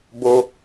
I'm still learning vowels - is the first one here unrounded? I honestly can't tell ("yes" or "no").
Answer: no